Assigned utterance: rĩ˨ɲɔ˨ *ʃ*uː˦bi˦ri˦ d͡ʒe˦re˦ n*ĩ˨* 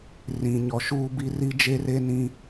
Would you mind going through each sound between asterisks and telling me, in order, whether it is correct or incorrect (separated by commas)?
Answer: correct, incorrect